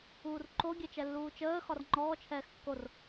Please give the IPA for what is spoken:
uːrǃo ɡʲɛt͡ʃɛlːuːt͡ʃəː xɒrŋ͡ǃɔː t͡ʃʰɛːxkːor

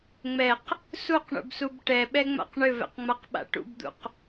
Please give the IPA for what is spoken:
ŋ͡mɛq | suqɳṵbsub ʈɛɓɛŋ͡ma̰q ɳʏvɛ̰qŋ͡maqɓa̰ ʈṵbd̪ṵq

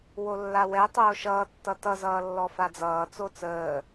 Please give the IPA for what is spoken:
wolːawɛ tˤoːʃʌːtːʌ tʌzʌːlːɔ fad͡zʌː t͡sot͡səː

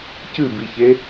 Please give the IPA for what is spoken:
cɨbiçe

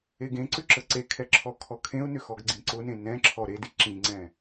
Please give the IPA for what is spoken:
eɡẽǀʏ ǁəǀekʰɛ ǁʰɔkʰɔkʰẽʊ̯nʏ xɔɡɡ͡ǀĩǀʊnẽ nɛ̃ǁʰɔ ɾedi ǁĩŋ͡ǀɛ̃

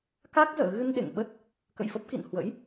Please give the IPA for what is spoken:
ka˦˥k̚zə̰ː˧˨ ɣɨ˧n ɗḛ˧˨ŋɓə˦˥t̚ | kə̰˧˨jfə˦˥p̚kḭ˧˨n hwə̰˧˥j

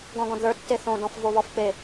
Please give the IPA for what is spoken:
ɡɔ̃ɡɔ̃dðə˞ tːeθõ dɔ̃fvoβɔfk͡pe

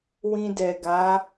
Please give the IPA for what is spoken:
wĩ˧dɛ˨ɡa˨˦

